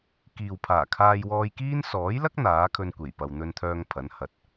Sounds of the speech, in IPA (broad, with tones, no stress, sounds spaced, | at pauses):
k iː˨ w pʰ aː˨˩ kʰ aː˧ j w ɔː˧ j k iː˥ n s ɔː˨˥ j l ɐ˥ k̚ n̪ aː˨˥ kʰ ɵ˧ n kʷ e˨˩ j p ɐ˨ w n̪ ɵ˧ n t̪ʰ œː˧ ŋ pʰ ɐ˨˥ n h ɐ˨˥ t̚